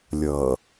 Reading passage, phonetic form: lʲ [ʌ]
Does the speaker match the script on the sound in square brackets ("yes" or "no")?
yes